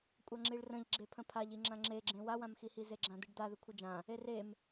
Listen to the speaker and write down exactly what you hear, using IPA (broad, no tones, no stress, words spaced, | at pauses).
kʷʼaŋ͡ǁiɭrə̃ʎɡ͡ǁe pʰə̃pʰaʎi ŋ͡ǁãŋ͡ǁeɡ͡ǁẽ wawãmxihi zeɡ͡ǁãd̪ɨɖd̪a ðəkʷʰɨd͡ʒã | erem